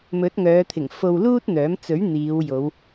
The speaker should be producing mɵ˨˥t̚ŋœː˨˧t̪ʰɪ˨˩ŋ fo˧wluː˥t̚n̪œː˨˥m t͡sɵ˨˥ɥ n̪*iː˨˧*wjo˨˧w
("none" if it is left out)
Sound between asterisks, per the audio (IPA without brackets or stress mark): iː˨˧